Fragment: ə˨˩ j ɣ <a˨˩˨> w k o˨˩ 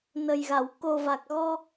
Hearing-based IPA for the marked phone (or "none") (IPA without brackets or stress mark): a˨˩˨